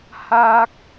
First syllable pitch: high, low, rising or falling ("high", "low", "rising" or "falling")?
high